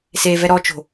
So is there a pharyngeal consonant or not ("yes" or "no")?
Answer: no